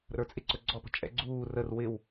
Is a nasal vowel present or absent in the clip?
absent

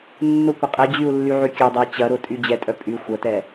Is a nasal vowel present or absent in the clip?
absent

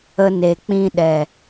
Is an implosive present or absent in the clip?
present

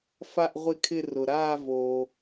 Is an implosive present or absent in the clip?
absent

